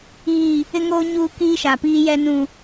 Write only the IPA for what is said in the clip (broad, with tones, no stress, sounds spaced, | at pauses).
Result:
iː˦˨ | ɪ˦ ŋ oː˦ ɲ uː˦ k iː˦ ʃ a˨ p iː˦ j ɛ˦ n ũ˦